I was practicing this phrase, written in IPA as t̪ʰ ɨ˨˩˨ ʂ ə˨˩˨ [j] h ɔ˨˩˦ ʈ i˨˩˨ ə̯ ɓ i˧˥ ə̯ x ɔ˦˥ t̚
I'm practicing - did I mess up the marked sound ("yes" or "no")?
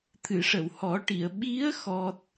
yes